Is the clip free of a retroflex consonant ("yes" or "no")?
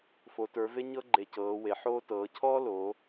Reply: yes